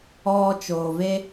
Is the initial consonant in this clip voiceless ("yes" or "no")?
yes